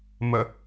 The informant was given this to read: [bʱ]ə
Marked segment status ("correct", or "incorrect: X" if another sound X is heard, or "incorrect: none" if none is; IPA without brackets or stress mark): incorrect: m